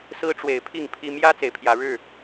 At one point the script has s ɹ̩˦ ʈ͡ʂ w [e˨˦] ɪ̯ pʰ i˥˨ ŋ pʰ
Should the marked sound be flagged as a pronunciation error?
no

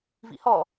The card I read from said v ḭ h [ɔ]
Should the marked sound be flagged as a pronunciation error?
no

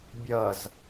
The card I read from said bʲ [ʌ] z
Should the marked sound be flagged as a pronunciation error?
no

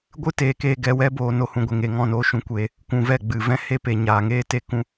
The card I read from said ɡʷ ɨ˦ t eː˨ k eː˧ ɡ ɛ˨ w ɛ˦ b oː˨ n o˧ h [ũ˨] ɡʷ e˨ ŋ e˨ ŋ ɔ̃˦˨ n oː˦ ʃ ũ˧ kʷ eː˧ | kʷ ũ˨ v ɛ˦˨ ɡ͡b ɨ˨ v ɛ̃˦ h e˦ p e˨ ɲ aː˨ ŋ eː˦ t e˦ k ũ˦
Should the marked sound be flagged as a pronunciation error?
no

